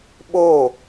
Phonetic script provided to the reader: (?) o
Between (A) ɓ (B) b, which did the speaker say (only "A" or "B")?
A